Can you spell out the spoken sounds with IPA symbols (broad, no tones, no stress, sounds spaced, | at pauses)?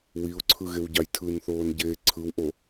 w i ʊ̯ ǀʰ ɯ ɣ e w ɟ ɑ j tʰ ɯ n θ oː n ɟ eː ǀʰ ɯ w ʔ o